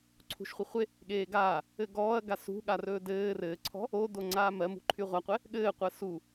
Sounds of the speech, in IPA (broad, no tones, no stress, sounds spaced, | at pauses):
ǀʰ ṳ ʃ χʷ ɘ χʷ e | ɠ eː ɡ aː | ɘ ɡ ɔː ɐ̯ ɡ a s ṳ ɠ a r ɵː d ɘː r ɘː ǀʰ ɔ̤ | o d o ŋ͡ǀ aː m ɜ m ṳ ǃʰ y ʁʷ a qʷ ɛ | ɠ ɘː qʷ ɜ s u